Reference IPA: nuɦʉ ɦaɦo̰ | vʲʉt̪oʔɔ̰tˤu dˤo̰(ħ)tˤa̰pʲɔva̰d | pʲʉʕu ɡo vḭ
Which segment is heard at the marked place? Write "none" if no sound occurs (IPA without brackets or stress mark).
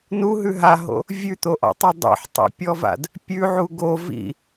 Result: ħ